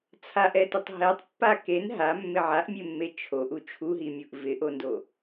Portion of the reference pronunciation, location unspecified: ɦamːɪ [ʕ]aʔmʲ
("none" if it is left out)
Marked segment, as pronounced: ʕ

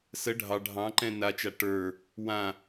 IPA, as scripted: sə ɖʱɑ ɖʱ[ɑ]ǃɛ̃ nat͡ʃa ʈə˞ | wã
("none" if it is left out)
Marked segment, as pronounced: ɑ̃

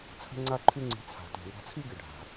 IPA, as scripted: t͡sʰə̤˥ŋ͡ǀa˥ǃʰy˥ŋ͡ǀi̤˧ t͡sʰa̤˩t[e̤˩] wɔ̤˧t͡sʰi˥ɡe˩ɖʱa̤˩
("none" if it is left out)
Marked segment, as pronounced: e̤˩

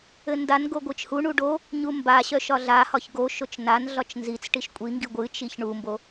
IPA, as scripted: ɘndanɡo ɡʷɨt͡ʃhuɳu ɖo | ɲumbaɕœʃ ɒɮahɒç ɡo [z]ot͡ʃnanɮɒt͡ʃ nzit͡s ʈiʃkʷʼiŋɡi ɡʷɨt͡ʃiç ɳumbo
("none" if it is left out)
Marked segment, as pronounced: ʃ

